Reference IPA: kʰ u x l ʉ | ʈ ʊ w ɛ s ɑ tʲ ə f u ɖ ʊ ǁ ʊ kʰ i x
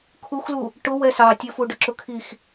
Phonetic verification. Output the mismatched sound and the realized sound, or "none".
ʉ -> u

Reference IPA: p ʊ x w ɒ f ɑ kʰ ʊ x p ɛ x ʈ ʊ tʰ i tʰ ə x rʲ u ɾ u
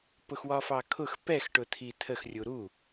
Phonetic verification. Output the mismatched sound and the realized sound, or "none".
none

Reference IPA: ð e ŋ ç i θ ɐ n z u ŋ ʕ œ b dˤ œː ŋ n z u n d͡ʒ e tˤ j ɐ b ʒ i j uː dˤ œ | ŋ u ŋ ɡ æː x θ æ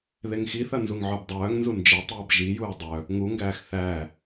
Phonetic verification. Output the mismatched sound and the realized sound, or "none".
ç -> x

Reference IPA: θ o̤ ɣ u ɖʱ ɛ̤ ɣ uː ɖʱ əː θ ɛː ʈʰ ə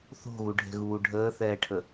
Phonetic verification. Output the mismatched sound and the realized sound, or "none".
none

